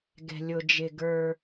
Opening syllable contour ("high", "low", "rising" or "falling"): low